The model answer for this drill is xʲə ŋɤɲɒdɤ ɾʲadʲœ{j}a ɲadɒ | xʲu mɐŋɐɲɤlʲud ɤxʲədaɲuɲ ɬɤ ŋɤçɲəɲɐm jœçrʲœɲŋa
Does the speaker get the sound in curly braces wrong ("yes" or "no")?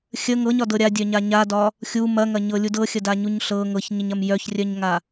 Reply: yes